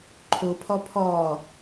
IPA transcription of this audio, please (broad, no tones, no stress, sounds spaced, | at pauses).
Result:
ǃʰ o pʰ ɒ pʰ ɒː